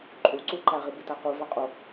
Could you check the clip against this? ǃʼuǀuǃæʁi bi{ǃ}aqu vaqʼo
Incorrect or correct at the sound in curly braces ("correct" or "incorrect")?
incorrect